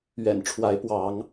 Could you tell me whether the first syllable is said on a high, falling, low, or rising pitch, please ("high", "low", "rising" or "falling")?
low